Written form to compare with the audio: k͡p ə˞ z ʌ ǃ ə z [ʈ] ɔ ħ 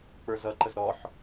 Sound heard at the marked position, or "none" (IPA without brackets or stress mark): ɾ